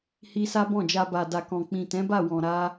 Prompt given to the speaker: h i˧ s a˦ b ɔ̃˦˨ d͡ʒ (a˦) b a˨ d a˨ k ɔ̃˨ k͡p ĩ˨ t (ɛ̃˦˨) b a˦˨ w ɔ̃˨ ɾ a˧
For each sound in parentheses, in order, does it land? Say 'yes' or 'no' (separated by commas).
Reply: no, no